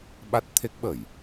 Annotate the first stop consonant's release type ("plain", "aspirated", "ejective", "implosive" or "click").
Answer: implosive